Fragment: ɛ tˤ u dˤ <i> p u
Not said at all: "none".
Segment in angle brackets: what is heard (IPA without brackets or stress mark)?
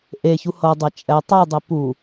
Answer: i